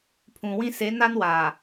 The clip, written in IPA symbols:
pʰũ˨wĩ˦ se˨˦ na˦nwaː˨

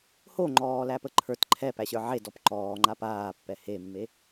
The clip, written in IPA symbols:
hoŋ͡ǃɔːlæpə ǃʰə˞t ǃʰɛpæɕə˞ ʕedɔp ǃɔːŋ͡ǃa paːpːɛ hemːe

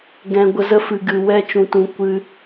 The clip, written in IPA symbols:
ɡɛ̃˧ɡʷə˧zə˦ fɨ˨ɡɨ˨ wɛ˧t͡ʃũ˨tũ˨ kʷɨ˧

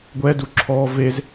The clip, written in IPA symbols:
ɡʷɛdu ǁʰɔ vez

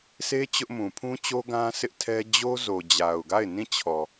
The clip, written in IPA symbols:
se˦ t͡ɕʊ˦ʔmũ˨ pʰũ˦t͡ɕo˦ ɡã˦sɪ˦ʔtʰɛ˦ d͡ʑo˦zo˨d͡ʑa˨ʊ̯ɡa˦˨ɪ̯ nĩ˦˨t͡ɕʰɔ˨

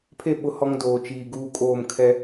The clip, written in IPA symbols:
pʰe˦˨ ɓʊ˦hɔ˦ŋdoː˨ t͡ʃiː˨ ɡuː˦kʼoː˦˨m kʰɛ˦

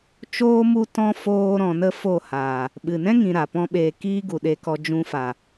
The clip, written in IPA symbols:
t͡ʃoː˦ mu˦tɔ̃˦ foː˦ɾɔ̃˧nə˦ fo˦˨haː˨ | ɓɨ˨nɛ̃˦ŋĩ˨ ɾa˨pɔ̃˦ɓeː˧ kiː˦ɡu˨ɗe˧kɔ˧ d͡ʒũ˧fa˨

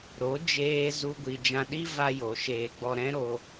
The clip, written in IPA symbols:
ɾo˨˦ d͡ʒeː˦zu˦ɡʷi˧ d͡ʒã˧ɗi˦ va˦jo˨˦ʃeː˧ ɡ͡bɔ˧ɾɛ̃˦ɾo˧

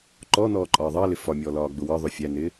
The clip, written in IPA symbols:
ǃɔːnɔːǃʼɒː ðˤɑlɪ fɒmʲɔːlɒːɡ͡bʊ wɒðˤʊ fʲænɪː

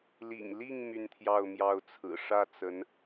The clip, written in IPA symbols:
lḭ˨˩ŋli˥˧ŋ my˥˧nt̪ʰjɑ˥˧ʊ̯mjɑ˥˩ʊ̯t͡sʰɹ̩˨˩ ʂä˥˩t͡sə˧˥n

